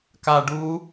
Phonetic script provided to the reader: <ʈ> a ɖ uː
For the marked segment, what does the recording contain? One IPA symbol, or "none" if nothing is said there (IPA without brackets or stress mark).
k